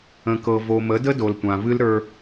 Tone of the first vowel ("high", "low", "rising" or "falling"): low